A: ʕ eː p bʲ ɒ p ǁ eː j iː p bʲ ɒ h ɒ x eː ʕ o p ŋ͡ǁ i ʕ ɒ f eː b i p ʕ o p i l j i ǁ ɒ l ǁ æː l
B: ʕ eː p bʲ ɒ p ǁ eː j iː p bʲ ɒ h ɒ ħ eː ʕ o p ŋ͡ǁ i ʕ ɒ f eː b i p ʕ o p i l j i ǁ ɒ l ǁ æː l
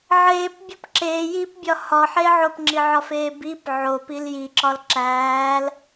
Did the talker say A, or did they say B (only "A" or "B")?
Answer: B